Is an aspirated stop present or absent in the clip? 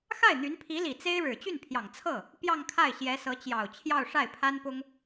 present